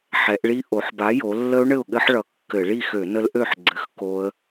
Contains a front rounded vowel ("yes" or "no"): yes